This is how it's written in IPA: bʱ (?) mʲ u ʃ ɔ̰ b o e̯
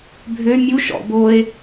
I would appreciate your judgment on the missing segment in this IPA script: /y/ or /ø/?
ø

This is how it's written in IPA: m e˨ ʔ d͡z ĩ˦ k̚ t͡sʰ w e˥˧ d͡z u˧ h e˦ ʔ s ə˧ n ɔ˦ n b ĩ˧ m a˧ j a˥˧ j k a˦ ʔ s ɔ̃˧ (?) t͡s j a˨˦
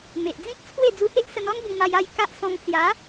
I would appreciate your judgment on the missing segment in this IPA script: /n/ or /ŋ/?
ŋ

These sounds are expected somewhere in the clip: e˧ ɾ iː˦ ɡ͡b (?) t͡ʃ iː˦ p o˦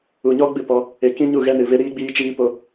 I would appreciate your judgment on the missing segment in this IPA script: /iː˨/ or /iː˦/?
iː˦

